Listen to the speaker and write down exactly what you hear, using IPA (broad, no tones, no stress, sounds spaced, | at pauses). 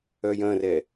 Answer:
œ j ɐ̃ r ɛ